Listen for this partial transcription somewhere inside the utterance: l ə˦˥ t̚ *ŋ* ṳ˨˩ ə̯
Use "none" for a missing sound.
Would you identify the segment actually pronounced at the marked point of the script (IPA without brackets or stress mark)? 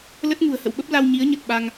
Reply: ŋ